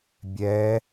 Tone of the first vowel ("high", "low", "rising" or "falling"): rising